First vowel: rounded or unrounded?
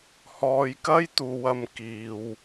rounded